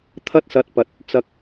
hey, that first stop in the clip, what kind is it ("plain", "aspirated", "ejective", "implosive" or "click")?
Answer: aspirated